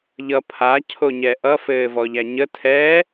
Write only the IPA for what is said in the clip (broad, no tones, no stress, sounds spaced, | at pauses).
ʎ ʌ pʰ a cʰ o ɲ ɛ ʔ ʌ f ɘː v ɔ ʎ æ ɲ ə tʰ ɛː